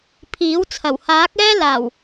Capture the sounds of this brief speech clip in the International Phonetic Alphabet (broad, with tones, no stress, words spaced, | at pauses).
pʰiː˨˥wt͡sʰɐ˨˩w haː˨˥k̚ɛː˥ laː˨˩w